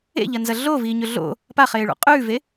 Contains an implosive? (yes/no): no